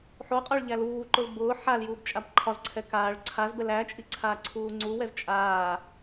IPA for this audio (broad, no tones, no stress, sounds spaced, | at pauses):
ħ o qʼ ɒ ɭ ʎ æ l uː ǃ ʊ l b ʊː ħ a l j uː b t͡ʃʼ a b ǃʰ ɒ z ǀʰ ɛ k aː ɭ ǀʰ a z b ɛ l æ t͡ʃʼ i ǀʰ aː ǀʰ uː ŋ͡ǀ u w ɛ z t͡ʃʼ aː